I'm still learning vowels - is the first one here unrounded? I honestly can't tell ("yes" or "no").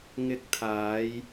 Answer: yes